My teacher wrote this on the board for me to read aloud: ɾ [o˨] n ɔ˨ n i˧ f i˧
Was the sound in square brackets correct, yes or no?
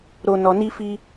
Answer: yes